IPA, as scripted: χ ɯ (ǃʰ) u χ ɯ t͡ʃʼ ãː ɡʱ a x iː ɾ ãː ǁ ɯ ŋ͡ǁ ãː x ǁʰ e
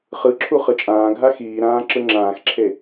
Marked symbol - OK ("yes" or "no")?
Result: no